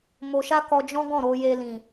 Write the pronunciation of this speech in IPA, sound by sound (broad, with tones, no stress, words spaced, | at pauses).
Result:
mo˧ʃa˦ kɔ˧d͡ʒɔ̃˦ɡɔ̃˦˨ ɾo˧je˧lĩ˨